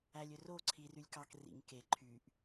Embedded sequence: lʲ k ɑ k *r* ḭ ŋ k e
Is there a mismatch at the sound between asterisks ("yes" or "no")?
no